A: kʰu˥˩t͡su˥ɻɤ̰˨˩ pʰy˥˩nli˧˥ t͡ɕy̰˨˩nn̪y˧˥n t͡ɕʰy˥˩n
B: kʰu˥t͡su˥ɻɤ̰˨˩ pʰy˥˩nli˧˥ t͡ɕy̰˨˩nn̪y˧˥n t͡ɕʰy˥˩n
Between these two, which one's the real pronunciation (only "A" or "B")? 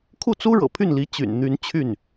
A